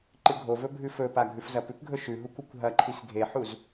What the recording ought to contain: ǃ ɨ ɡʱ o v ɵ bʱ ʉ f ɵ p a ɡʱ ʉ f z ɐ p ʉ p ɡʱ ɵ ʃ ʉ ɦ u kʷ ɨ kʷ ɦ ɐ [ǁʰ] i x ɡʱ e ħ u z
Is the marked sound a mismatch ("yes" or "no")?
yes